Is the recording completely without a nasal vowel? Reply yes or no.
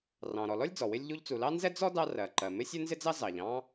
no